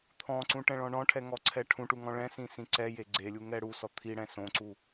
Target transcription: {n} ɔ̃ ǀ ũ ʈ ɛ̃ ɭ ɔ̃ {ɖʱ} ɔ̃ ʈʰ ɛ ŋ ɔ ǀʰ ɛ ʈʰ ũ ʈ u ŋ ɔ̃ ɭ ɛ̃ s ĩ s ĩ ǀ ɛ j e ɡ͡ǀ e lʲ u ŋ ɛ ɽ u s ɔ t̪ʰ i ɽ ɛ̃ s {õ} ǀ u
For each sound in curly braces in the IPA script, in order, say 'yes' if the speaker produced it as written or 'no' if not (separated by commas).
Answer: no, no, yes